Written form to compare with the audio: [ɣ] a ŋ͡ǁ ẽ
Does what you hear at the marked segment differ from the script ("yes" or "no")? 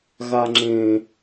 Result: no